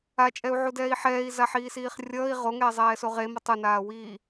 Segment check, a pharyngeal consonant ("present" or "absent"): present